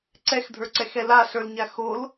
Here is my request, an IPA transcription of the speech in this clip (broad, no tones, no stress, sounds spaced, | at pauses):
ǀ ɛ x dʱ ə˞ ǀ ɛ x ɛ l a ɬ ə˞ l ɲ a x o l